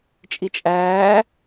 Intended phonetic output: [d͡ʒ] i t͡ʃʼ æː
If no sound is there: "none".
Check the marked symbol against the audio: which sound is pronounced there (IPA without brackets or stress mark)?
t͡ʃʼ